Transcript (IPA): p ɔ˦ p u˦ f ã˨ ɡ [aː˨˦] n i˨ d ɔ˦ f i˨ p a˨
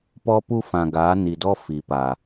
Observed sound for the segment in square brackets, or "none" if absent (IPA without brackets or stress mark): aː˨˦